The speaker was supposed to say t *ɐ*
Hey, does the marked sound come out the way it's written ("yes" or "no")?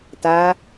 no